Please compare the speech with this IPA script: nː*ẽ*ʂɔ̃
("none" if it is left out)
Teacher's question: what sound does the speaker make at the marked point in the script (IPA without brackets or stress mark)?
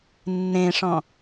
ẽ